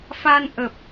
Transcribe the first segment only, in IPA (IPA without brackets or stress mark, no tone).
f